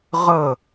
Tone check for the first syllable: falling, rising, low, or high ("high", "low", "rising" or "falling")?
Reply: falling